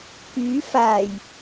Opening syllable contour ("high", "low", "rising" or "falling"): rising